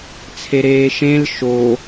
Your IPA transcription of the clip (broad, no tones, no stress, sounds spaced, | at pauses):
t͡sʰ e ɾ eː ʃ ẽ l ʃ o